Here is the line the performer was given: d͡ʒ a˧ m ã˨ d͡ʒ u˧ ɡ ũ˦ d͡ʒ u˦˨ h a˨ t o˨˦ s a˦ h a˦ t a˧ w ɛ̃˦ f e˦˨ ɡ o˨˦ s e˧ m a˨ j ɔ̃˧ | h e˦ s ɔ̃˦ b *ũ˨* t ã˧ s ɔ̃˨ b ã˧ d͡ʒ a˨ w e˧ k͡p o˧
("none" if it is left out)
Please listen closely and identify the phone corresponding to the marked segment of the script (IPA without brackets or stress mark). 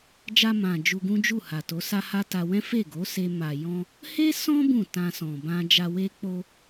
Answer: ũ˦˨